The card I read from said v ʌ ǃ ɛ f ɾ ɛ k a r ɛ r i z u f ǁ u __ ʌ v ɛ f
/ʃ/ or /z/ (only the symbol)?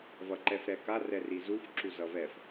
z